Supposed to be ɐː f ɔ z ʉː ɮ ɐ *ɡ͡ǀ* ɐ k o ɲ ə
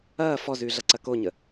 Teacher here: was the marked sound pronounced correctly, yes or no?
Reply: no